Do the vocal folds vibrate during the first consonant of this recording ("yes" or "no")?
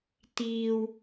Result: no